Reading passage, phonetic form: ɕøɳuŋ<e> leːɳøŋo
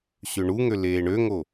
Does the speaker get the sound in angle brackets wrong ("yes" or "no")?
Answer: yes